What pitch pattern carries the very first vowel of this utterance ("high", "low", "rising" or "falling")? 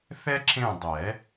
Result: high